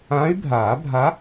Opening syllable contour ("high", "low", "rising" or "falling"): rising